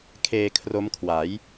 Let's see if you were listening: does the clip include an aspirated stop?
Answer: yes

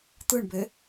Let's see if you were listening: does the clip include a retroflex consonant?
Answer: yes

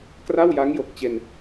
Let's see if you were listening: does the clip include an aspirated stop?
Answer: no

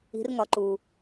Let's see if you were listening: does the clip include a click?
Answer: yes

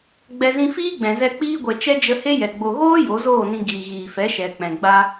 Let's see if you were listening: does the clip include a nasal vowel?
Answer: yes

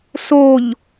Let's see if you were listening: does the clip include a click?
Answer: no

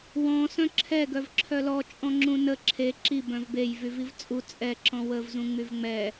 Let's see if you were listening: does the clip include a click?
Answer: yes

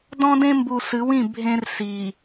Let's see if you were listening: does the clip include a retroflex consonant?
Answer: no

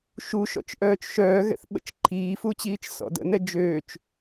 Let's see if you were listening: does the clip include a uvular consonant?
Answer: no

